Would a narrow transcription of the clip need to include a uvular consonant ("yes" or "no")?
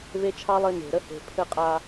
yes